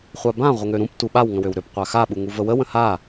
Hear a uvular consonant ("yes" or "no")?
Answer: yes